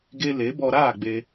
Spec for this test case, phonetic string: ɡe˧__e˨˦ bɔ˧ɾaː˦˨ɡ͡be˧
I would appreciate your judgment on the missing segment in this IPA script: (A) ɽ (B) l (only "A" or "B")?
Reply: B